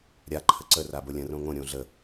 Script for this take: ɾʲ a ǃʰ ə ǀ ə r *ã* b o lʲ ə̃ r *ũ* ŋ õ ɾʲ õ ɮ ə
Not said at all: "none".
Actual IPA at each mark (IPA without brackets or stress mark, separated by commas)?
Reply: a, õ